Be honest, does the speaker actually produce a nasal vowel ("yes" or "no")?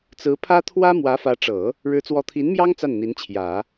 no